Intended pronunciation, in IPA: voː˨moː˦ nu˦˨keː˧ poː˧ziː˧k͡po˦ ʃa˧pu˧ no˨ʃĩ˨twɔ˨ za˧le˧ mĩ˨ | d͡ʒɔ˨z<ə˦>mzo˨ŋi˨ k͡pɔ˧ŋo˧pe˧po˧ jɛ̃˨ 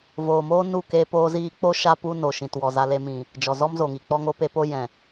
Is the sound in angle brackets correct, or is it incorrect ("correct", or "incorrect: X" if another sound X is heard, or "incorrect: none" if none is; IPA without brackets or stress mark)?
incorrect: ɔ˦